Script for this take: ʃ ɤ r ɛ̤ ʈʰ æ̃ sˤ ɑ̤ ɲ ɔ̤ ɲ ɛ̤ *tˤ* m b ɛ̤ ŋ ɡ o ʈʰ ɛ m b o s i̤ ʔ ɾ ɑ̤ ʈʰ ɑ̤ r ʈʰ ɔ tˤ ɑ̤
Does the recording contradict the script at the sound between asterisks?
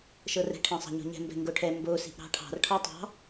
yes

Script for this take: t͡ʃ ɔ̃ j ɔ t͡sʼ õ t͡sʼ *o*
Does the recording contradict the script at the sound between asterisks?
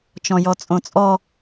yes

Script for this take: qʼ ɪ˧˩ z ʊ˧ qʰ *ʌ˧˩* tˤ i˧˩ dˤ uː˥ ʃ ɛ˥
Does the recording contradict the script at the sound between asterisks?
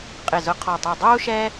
yes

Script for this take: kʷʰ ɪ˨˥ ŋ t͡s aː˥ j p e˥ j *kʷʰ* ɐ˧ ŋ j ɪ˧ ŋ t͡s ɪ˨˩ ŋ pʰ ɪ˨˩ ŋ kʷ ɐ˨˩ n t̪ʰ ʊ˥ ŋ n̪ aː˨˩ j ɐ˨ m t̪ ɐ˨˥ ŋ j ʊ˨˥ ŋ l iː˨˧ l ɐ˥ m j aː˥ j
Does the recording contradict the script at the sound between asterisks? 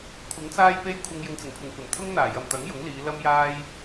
no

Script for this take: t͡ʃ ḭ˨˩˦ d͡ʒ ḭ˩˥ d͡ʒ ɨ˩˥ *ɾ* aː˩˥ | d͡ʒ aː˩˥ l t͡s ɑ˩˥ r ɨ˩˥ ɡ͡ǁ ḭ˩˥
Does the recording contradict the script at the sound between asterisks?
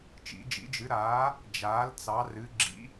no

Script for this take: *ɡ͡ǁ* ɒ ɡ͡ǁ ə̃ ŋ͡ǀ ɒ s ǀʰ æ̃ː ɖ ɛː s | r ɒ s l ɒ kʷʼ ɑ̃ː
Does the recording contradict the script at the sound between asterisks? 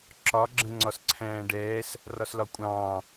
yes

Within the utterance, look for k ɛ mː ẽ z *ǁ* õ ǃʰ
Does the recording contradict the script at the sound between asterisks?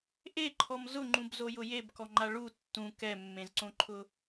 yes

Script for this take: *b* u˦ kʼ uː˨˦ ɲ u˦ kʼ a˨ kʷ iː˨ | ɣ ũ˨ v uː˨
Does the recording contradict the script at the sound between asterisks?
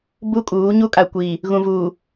no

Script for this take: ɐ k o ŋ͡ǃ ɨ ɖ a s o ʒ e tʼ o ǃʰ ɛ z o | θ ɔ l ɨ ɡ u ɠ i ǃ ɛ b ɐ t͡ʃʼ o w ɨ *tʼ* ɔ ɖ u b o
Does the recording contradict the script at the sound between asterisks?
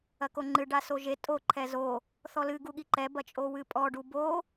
yes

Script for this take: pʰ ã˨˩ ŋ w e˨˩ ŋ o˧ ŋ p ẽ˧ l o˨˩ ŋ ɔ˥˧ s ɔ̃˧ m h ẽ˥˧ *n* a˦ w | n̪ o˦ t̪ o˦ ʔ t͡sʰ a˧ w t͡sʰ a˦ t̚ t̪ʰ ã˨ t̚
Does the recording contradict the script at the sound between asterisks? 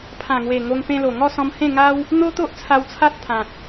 yes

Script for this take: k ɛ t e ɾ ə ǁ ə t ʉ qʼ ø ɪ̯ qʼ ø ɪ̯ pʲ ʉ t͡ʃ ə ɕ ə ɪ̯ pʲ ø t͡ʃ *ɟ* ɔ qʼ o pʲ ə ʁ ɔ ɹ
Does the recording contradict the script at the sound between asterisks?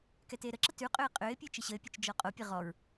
yes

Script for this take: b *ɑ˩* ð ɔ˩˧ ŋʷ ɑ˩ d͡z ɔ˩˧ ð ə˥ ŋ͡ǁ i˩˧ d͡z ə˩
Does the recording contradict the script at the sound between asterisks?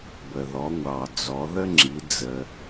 yes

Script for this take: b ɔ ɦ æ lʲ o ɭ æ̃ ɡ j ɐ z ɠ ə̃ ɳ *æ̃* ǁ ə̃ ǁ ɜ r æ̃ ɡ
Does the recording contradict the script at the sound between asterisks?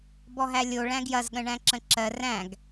no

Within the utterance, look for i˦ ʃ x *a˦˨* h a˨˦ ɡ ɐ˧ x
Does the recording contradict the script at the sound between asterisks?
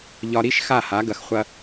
no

